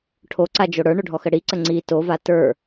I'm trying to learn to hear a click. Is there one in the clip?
yes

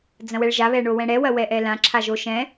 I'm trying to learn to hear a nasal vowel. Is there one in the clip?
yes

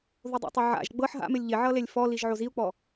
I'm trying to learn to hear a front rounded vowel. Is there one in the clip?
no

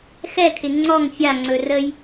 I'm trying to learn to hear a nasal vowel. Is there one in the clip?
no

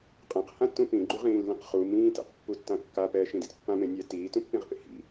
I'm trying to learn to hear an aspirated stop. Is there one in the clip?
no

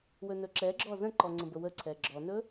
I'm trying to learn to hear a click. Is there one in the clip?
yes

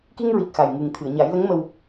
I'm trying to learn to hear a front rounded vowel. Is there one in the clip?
no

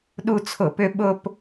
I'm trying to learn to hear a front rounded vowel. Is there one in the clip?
yes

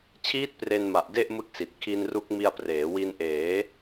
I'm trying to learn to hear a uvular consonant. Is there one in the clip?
no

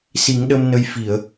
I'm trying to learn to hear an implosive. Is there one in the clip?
yes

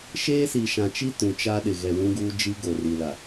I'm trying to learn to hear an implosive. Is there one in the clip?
yes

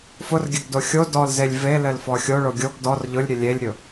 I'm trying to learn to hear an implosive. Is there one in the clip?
no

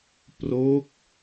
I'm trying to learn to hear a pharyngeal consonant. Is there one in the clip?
no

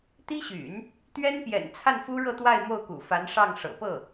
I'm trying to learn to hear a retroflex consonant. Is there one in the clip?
yes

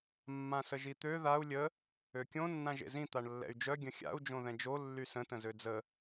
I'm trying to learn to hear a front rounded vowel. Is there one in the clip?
yes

